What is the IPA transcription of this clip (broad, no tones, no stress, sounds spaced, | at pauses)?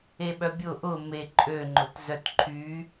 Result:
e ɓ œ bʲ ʊ ʔ ʊ m e ǃʼ ø ŋ͡ǃ ʊ t z œ t ǃʰ y